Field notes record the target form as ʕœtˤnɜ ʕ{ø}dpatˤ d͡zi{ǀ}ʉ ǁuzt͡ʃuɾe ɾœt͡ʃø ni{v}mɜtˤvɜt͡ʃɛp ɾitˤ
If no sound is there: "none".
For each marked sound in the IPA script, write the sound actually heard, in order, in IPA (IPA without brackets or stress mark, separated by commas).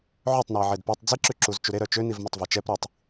e, ǁ, v